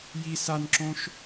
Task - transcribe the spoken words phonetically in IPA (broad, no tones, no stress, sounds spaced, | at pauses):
j i s a n ǁ õ ʃ